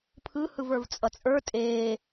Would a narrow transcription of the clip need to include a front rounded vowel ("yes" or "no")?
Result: no